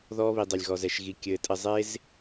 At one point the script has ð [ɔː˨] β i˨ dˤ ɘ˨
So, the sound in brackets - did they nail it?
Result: no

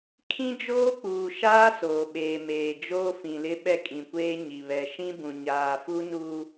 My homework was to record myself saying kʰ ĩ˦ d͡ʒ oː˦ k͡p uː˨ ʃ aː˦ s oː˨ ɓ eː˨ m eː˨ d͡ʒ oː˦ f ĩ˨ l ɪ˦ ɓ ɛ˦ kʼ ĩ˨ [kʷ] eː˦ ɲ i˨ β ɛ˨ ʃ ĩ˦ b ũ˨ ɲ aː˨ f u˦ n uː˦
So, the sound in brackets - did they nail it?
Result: yes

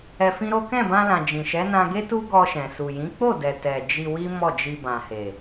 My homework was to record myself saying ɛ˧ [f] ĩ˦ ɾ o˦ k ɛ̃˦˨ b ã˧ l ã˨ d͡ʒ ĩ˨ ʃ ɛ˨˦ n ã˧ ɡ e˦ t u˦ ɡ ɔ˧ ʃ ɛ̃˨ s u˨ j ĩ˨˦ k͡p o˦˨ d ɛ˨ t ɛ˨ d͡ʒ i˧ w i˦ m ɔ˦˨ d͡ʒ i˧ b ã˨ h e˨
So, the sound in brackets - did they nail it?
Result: yes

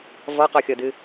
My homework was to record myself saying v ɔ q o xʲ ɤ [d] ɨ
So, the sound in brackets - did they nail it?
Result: yes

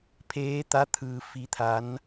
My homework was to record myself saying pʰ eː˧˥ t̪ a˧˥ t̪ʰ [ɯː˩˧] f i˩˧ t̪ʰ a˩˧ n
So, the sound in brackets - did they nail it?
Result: no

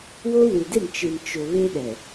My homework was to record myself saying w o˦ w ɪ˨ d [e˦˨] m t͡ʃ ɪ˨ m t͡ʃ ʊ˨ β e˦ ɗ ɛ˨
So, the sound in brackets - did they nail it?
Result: yes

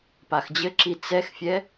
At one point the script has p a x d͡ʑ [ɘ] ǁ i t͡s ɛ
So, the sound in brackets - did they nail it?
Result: yes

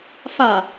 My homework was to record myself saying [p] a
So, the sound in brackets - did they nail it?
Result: no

